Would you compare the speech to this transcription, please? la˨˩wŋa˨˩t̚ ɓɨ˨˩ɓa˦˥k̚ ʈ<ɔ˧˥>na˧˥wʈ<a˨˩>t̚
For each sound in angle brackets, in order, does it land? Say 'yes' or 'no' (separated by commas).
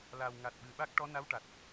yes, yes